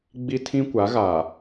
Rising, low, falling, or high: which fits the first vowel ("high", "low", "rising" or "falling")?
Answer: high